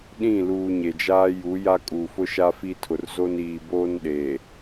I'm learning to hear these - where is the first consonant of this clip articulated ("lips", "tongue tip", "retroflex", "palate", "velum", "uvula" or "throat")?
tongue tip